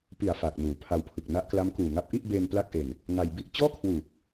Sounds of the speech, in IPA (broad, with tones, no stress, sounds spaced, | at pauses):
p i˨˩ a̯ f aː˨˩ k̚ n uː˩˦ pʰ a˧ w pʰ ɯ˨˩ k̚ n a˦˥ ʔ k l a˦˥ m k uː˨˩ ŋ a˦˥ p̚ ʔ i˥˩ ʔ b eː˧ n p l a˥˩ k̚ ʔ e˧ n | ŋ a˧ j b i˥˩ ʔ t͡ɕ ɔː˥˩ kʰ w uː˨˩ p̚